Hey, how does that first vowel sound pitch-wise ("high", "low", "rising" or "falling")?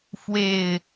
low